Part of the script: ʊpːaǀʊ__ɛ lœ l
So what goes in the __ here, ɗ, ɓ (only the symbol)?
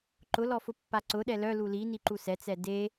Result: ɗ